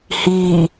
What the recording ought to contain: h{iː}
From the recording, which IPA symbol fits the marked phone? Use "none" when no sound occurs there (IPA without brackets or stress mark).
iː